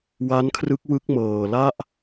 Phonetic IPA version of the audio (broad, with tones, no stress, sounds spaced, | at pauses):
w a˦˥ n kʰ r ɯ˦˥ k̚ w ɯ˦˥ k̚ m ɤː˨˩ l a˥˩ ʔ